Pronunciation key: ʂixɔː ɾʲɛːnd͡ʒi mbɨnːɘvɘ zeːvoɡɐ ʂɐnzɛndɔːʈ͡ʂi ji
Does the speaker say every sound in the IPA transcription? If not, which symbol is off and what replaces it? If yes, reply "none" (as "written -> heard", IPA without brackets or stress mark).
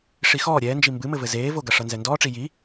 nː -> m